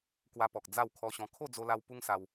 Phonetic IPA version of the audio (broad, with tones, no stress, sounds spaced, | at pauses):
k w a˧ p ɔ˨ k̚ d͡z a˥˧ w kʰ ɔ˧ ɕ ɔ̃˧ kʰ o˥˧ d͡z o˧ l a˧ w p u˦ ŋ s a˧ w